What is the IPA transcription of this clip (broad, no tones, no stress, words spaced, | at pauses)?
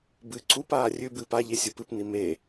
bɨ ǀupaː rʲʉbɨː paʎesʲu pɨpni me